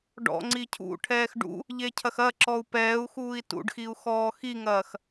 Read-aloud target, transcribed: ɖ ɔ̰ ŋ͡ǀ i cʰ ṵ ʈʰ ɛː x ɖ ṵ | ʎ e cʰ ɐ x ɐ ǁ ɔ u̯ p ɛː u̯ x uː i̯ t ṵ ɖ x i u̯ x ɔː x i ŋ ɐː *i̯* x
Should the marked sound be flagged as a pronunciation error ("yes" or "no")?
yes